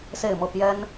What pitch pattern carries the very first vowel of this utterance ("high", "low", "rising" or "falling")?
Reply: falling